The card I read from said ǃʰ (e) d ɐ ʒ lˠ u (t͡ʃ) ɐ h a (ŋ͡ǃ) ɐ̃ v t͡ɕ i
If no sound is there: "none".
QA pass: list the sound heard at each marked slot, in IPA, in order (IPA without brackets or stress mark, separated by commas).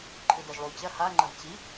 ɨ, t͡ɕ, ŋ͡ǃ